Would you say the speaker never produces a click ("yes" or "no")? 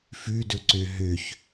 no